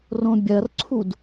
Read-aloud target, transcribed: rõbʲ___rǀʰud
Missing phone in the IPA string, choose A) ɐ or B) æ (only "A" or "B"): A